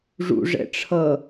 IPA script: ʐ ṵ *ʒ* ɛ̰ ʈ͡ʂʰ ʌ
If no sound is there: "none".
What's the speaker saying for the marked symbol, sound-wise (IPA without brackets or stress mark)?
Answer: ʐ